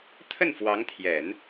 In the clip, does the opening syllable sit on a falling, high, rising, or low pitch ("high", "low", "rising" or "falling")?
falling